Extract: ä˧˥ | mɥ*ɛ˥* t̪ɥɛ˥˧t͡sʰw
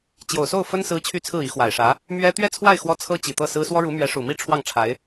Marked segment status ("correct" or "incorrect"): correct